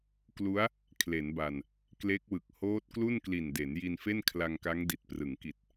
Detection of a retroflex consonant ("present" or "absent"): absent